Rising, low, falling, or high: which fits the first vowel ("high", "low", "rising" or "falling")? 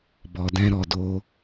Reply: low